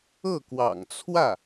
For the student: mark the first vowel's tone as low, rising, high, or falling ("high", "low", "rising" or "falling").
falling